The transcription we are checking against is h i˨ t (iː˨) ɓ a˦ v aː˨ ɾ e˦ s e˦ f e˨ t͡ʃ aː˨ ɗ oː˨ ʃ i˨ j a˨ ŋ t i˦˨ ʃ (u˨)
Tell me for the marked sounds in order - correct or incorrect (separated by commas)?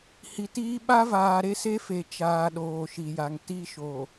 incorrect, incorrect